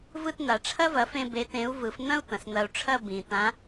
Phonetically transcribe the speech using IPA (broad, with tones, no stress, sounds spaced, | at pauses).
v ɯ˥˧ t n̪ a˨˩˦ ʈ͡ʂʰ ɐ˥ v ɐ˨˥ f ẽ˥˧ b e˨˥ t ẽ˨˥ u̯ v ɯ˨˩˦ f n̪ ɐ̃˥ u̯ t̪ ɐ̃˩ s n̪ ɐ˨˩˦ u̯ ʈ͡ʂʰ ɐ˥˧ b ĩ˩ t̪ ã˨˥